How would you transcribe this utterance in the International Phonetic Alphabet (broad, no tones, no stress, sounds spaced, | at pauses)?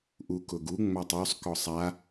ʔ u k ʊ ɡ u ŋ͡m a tˤ o sˤ k ɔ sˤ a